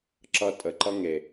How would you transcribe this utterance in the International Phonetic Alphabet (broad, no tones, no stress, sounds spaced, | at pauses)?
ǁ ʌ tʼ ə ǃ ʌ ŋ e